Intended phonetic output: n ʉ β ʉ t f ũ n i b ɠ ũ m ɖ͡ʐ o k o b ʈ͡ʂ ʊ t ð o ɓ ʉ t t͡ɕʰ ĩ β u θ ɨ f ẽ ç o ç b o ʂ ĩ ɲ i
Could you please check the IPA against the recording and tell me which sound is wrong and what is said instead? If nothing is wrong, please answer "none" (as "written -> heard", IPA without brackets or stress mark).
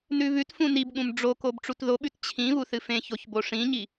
ʊ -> u